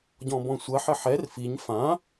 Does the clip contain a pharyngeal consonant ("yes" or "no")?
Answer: yes